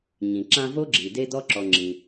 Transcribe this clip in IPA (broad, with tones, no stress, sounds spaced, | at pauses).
ɲ ĩ˩ ǁ ã˦ v o˥ ɡ͡ǁ i˩ d e˥ d ɔ˥ ǁ ɔ˨ ŋ͡ǁ ĩ˩